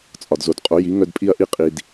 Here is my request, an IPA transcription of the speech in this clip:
t͡sʼ ɒ˨ d z o˨ d qʼ o˨˥ j i˨˥ ŋ œ˥˧ d pʼ i˥˧ ɐ̯ ʔ i˥˧ qʼ i˨ d

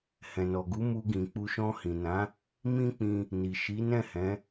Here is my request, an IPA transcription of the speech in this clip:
h ɛ̃˨ n ɔ˨ ɡ u˨˦ m u˧ ɡ ĩ˨ k͡p u˧ ʃ ɔ̃˧ h ĩ˨ n ã˨˦ | m ĩ˦ k͡p ĩ˧ | n i˨ ʃ i˨˦ n ɛ̃˦˨ h ɛ̃˨˦

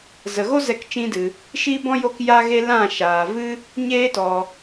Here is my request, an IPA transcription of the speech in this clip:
z ə˨ ɣ o˦ z ɛ˧ k t͡ʃ ĩ˦ d ɨ˧ | ʃ i˦ b ɔ̃˦ j o˦ k j a˦ ɣ e˦ l ã˦˨ ʃ aː˨ v ɨ˦ | ɲ eː˦ t ɔ˧

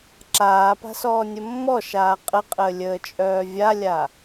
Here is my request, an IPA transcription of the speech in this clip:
ǁ aː p a̤ s ɔː nʲ ə mː ɔ ʃ aː qʼ ə qʼ əː lʲ əː t͡ʃʼ œː vʲ a lʲ a

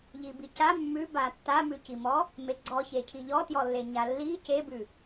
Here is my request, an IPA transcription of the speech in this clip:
ʎ i b i c a mː ʉ b a tː a m ʉ c i m ɔ | m e ɡ͡ǀ ɔ ç e cʰ i ʎ ɔ t j ɔ lː e ɲ a lː i c e b ʉ

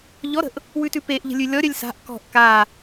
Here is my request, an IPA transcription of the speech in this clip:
ʎ ɔ ɾ ə̤ ʔ | w ʉ t ʉ p e ʔ ʎ ə̤ lʲ ʉ lʲ ɔ ɾʲ œ lʲ s a̤ ʔ k ɔ̤ ʔ k a

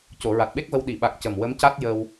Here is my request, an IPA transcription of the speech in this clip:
c o˨˩˨ ɹ a˨˩ t̚ ɓ e˦˥ k̚ v ə˧ w ɗ i˨˩˨ ɓ a˨˩ k̚ c ə˨˩ m w ə˧˥ m c a˦˥ t̚ j ə˧ w

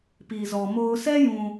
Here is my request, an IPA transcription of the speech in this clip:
p i˨ z ɔ˨ m o˦ ʊ̯ sʰ ɛ˦ j ũ˨

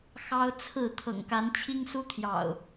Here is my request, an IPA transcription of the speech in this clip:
x ɑ˦ ʊ̯ t͡sʰ ɹ̩˥˨ t̪ʰ ɤ̰˨˩ ŋ k a˨˦ n t͡ɕʰ i˦ ŋ s u˦ t̪ʰ j ɑ̰˨˩ ʊ̯

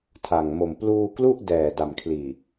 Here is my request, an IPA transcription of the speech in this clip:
tʰ a˨˩ ŋ m o˨˩ m p l uː˧ k l u˥˩ ʔ d ɛː˨˩ d a˨˩ m kʰ l iː˨˩

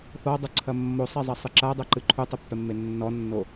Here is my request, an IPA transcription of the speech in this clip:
θ ɔ dˤ ɘ ǀʰ ɐ mː o sˤ ɛ zˤ ɐ sˤ ɨ ǁ a dˤ ɛ ǃ ɨ ǃʰ u tˤ ɘ pː ɛ mː e nː ɔ nː o

